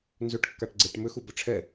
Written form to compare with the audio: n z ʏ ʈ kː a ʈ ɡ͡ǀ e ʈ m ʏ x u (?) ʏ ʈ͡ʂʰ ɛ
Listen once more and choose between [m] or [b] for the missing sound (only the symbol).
b